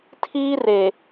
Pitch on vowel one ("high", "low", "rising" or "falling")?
high